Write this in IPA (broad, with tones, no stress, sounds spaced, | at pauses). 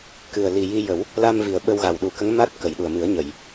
k ɨ˨˩ ə̯ l i˨˩ j i˧ j ə˨˩˦ w | l a˧ m v i˨˩ ə̯ ɓ ə˧ w ɣ a˨˩ w ɗ u˨˩˦ k ə˧˥ ŋ m a˦˥ t̚ k ə˨˩˨ j ɗ u˨˩ ə̯ m ɨ˨˩˦ ə̯ ɲ ə˨˩˨ j